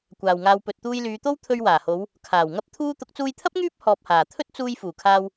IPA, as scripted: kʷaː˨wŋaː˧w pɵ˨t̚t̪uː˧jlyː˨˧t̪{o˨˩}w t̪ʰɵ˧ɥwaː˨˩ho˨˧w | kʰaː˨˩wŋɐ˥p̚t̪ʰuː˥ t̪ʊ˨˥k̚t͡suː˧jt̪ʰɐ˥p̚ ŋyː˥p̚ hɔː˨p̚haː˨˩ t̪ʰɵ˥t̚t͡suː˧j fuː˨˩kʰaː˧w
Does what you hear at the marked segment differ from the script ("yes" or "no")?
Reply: yes